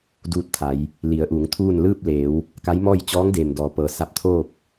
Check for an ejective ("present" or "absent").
absent